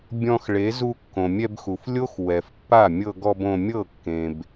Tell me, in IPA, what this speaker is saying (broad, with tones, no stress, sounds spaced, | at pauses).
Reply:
bʲ ɔ̃˧ x ɭ e˨˦ z u˧ kː õ˨ mʲ ɛ˧ b x u˨ f lʲ o˦ x w ɛ˨ f pː a˦˨ mʲ ɤ˧ ɡ ɔ˧ b õ˧ mʲ ɤ˦˨ kː ẽ˨ b